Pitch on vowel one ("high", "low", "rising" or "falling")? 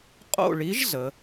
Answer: falling